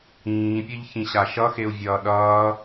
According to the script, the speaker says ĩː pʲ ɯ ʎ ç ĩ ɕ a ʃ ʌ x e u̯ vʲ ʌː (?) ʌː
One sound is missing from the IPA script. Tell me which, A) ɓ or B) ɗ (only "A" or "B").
B